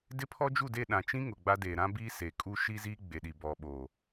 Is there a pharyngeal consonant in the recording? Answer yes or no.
no